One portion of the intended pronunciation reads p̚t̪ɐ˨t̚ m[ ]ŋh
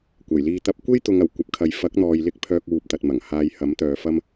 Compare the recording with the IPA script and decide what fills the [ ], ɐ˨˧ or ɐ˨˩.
ɐ˨˩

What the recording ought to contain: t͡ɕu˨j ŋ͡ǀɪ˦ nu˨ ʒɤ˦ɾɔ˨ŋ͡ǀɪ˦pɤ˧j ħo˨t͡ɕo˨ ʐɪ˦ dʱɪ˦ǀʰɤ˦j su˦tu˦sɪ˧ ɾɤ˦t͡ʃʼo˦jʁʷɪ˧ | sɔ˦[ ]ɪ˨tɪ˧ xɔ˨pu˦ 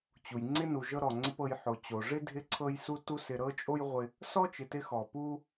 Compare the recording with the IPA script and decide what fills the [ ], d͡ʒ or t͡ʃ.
t͡ʃ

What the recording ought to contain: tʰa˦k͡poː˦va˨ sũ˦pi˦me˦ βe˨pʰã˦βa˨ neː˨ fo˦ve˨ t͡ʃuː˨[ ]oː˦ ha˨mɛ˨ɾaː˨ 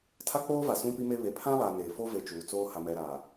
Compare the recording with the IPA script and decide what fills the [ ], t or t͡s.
t͡s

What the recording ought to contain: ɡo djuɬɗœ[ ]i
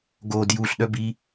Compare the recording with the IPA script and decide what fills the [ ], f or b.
b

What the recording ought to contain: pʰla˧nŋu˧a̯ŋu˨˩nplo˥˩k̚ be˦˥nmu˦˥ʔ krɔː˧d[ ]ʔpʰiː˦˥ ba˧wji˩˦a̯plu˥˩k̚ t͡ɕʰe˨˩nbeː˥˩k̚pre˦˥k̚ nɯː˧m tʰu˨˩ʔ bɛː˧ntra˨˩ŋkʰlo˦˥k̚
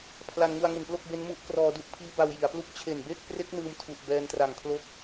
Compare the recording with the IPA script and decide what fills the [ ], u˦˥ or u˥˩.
u˥˩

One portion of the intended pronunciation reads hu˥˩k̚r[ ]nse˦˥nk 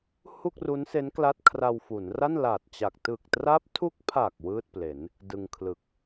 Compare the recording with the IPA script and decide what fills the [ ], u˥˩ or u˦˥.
u˦˥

